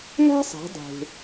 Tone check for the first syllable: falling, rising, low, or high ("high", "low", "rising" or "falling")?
high